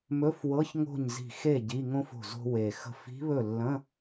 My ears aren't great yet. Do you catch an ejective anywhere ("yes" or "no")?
no